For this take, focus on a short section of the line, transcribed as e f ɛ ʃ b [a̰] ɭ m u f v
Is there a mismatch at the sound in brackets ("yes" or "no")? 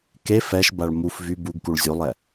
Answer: yes